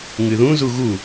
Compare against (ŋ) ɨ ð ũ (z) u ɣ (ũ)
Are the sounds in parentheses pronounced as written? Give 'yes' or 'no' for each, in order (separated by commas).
yes, yes, no